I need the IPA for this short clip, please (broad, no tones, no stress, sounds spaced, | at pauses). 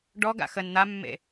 ɖ ɔ ɡ a̰ x ə n n̪ a mː ḛ